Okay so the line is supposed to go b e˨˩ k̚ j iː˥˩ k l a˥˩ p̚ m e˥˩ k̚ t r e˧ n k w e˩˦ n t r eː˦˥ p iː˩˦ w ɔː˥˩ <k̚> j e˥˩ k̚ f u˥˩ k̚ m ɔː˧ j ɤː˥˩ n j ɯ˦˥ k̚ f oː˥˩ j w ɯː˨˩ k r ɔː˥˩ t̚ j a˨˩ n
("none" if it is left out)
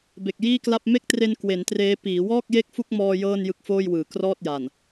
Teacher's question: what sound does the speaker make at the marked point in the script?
k̚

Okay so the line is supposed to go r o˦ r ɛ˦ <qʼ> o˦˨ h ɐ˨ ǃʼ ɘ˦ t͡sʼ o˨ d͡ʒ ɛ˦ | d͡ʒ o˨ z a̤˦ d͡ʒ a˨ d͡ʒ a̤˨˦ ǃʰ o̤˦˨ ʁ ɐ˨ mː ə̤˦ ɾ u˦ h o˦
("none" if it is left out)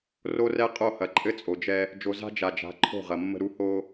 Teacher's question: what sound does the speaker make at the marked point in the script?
qʼ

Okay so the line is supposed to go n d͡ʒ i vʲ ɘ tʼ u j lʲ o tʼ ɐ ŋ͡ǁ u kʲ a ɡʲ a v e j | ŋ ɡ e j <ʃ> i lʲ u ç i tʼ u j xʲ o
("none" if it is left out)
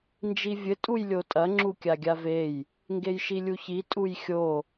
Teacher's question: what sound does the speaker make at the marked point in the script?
ʃ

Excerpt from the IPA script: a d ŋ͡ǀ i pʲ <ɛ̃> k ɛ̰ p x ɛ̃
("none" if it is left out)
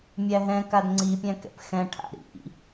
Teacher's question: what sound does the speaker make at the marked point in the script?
æ̃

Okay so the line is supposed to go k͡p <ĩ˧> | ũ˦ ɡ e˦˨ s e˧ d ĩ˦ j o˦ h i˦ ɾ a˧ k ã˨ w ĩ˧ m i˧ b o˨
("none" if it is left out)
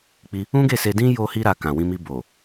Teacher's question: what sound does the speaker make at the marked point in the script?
i˧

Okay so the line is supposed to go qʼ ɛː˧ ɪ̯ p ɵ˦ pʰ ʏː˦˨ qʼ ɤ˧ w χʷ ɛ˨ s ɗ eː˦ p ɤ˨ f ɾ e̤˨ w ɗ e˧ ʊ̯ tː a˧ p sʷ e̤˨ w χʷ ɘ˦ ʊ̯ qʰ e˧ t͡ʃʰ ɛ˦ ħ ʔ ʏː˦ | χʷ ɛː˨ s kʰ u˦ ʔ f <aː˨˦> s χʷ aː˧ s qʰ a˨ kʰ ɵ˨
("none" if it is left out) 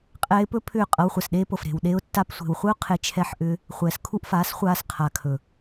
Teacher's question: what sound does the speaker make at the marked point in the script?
aː˨˦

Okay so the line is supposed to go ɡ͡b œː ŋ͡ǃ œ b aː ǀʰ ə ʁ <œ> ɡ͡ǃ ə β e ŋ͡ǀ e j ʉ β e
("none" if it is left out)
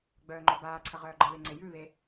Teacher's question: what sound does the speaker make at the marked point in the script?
œː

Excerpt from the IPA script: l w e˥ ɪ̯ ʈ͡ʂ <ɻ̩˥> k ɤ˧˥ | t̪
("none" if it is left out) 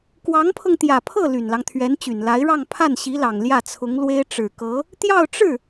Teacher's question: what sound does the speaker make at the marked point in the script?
ɻ̩˨˩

